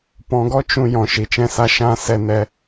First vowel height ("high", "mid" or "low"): mid